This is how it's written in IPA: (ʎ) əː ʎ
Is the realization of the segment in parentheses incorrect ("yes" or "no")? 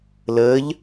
yes